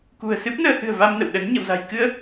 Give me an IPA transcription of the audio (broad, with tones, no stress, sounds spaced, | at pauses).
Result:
k ṳ˨˩ ə̯ s ɨ˦˥ p̚ n əː˧ h ɨ̤˨˩ ə̯ v a˧ m n ə̰˧˨ w ɗ ə˨˦ n ɲ ə̰˧˨ w z a̤˨˩ j k ɨ˧ ə̯